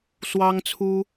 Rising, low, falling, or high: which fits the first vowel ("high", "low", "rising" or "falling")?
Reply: high